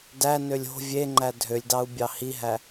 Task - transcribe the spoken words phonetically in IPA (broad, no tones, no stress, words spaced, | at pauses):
dænølʲ o̤ vʲeŋ͡ǃæ dʱølʲdɑu̯bʲɑ hiɦæ